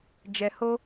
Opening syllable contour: low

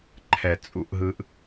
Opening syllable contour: low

